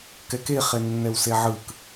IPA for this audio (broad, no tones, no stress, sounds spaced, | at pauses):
k ɛ k e χ e nː ɛ w s e ʕ ɯ k